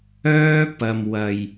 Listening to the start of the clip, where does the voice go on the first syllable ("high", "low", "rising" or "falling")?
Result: high